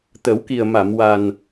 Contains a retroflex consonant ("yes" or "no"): no